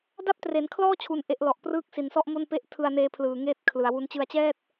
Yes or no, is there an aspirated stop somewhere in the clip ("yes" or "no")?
yes